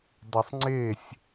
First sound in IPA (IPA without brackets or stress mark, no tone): dˤ